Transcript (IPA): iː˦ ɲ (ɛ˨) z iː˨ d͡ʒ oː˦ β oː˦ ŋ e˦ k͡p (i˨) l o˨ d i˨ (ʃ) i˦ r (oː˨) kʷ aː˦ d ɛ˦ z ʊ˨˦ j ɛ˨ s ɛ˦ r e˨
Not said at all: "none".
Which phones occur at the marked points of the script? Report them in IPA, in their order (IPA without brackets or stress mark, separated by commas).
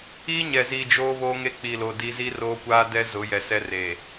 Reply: ɛ˨, i˨, z, oː˦